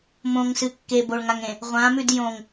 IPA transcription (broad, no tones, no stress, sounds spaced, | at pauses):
m õ ŋ s ɨ kː e b o ɭ ŋ a ŋ ẽ | ʁʷ ã m ʉ d j õ ŋ